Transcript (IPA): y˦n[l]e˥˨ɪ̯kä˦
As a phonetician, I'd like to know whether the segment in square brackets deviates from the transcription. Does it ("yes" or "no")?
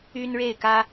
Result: yes